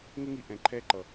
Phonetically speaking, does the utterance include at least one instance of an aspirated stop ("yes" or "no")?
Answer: yes